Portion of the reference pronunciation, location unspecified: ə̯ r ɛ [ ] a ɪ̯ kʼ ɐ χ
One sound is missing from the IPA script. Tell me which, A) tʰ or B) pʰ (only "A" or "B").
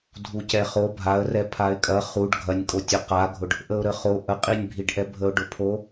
B